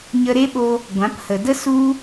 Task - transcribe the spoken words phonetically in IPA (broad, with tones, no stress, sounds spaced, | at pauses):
ɲ ə˧ ɾ e˦ ɓ o˧ | ɡʷ ã˨˦ p h ə˨ d ə˦ s u˦